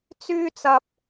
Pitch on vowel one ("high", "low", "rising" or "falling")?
high